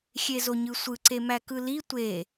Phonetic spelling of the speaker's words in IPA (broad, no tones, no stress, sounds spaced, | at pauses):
xʲ e z o ɲ ɯ sʷ ɯ ǀ e m æ k ɯ l i tʷ e